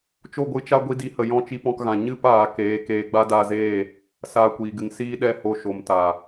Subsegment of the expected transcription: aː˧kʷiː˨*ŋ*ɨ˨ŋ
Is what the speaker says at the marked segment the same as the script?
no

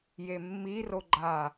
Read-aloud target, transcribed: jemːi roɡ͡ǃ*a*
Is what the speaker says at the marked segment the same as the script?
yes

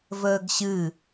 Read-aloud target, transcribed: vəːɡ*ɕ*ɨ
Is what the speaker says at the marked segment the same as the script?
yes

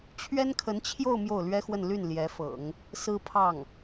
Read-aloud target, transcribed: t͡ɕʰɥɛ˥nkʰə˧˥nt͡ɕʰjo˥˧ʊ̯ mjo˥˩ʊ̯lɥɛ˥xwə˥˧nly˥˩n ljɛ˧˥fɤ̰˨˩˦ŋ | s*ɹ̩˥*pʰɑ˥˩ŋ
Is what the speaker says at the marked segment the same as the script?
yes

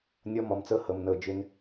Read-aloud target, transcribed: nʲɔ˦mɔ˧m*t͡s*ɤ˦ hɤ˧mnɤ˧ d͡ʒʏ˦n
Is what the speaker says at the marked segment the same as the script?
yes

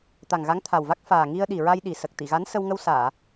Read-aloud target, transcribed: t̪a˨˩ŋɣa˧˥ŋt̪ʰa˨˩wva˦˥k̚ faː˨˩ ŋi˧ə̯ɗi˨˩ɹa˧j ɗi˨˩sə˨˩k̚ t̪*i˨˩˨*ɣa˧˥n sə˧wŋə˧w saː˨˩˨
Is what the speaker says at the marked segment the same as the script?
yes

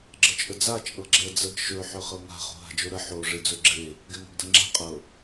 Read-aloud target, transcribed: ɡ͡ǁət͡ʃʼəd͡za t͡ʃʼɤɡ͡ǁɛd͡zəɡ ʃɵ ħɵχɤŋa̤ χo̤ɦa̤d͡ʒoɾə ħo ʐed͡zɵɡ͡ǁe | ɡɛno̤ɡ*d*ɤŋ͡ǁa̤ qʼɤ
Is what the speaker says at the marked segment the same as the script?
yes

